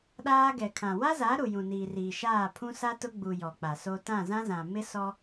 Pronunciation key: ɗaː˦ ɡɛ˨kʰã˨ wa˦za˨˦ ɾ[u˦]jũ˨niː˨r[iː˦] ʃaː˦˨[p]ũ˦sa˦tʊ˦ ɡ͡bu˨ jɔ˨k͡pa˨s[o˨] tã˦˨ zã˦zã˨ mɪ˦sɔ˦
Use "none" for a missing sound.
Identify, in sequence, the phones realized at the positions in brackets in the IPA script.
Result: u˨, iː˨, pʰ, o˦

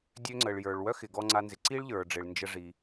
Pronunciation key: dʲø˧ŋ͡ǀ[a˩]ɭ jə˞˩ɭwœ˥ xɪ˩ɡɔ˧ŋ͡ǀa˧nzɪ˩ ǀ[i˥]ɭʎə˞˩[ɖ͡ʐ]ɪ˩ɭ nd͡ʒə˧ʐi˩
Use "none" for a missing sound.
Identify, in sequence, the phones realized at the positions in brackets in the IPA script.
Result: ə˩, i˥, ɖ͡ʐ

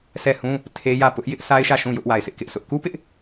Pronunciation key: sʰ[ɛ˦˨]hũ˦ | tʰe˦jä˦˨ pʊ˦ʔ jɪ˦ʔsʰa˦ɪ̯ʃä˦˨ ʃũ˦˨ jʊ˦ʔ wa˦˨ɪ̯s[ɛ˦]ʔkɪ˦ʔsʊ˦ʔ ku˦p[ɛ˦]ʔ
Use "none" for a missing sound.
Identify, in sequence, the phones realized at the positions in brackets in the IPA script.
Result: ɛ˦˨, ɪ˦, ɪ˦

